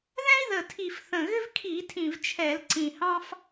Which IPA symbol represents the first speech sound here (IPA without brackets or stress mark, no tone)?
ð